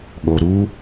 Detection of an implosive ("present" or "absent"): present